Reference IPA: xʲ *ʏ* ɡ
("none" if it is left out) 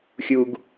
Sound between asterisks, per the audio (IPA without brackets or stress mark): u